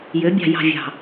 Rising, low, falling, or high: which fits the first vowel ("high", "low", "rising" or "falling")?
rising